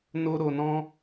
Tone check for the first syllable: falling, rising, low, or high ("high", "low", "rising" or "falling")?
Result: high